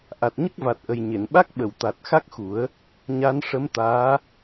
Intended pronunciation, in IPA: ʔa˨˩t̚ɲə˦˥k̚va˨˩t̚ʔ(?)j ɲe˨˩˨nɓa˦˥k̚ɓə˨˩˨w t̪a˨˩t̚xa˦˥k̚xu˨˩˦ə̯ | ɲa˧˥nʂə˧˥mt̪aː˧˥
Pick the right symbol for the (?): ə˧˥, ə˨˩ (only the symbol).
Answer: ə˨˩